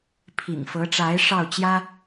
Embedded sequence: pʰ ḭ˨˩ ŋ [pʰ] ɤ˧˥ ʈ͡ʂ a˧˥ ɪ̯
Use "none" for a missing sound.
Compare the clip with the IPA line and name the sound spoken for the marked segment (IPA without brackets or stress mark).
f